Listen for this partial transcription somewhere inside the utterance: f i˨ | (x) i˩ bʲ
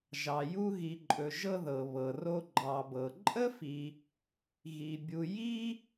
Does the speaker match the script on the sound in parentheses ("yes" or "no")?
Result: no